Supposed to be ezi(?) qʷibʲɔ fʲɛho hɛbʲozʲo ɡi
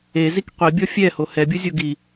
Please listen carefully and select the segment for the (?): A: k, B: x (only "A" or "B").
A